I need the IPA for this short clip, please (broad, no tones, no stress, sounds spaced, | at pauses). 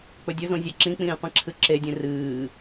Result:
k͡p ɵ dʲ ɵ z õ zʲ a ǁ ĩ k͡p ĩː qʷ ĩ ǁʰ ɨ ǁ e dʲ ẽ r ɨː